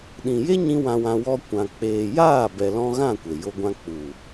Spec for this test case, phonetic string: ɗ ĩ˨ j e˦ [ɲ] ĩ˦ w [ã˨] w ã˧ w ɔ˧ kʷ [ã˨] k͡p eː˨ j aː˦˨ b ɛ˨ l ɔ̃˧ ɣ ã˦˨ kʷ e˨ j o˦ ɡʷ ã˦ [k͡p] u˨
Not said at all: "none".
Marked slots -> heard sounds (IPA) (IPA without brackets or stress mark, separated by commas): ɲ, ã˧, ã˨, k͡p